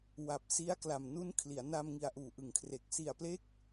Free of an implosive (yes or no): yes